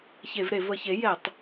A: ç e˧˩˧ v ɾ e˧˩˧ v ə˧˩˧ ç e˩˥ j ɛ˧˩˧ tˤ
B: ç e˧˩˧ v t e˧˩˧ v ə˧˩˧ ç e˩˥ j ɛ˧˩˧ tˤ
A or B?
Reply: A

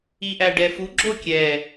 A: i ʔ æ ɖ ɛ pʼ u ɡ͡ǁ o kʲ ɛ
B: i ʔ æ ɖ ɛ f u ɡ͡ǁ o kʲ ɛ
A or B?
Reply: B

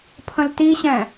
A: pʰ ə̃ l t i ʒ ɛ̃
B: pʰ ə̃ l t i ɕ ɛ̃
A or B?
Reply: B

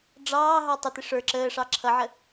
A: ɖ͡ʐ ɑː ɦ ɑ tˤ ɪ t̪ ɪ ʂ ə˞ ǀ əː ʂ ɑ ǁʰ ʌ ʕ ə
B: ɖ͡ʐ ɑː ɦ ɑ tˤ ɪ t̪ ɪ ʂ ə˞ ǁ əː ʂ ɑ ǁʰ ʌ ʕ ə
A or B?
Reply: B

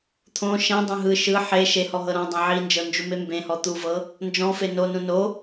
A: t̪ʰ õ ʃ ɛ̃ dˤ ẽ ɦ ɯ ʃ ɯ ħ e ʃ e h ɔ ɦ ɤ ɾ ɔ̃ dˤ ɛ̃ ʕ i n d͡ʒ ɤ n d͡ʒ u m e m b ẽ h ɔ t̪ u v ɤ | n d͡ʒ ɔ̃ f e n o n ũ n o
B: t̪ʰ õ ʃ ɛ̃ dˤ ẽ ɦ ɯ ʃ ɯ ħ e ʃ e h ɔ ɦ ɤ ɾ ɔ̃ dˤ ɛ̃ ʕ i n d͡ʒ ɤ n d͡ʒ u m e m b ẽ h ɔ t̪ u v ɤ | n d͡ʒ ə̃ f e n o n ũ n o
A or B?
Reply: A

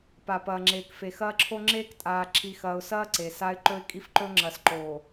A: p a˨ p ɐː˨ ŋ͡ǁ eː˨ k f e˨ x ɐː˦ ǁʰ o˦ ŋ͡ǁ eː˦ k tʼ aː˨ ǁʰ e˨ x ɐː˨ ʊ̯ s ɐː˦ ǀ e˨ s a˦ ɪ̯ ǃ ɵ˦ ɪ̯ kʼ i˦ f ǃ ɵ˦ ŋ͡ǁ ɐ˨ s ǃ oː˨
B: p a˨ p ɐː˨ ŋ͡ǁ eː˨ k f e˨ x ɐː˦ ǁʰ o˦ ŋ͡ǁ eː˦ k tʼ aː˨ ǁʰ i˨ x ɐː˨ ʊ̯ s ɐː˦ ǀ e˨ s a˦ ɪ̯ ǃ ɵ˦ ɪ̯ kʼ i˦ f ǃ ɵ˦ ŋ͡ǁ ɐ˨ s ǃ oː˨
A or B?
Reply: B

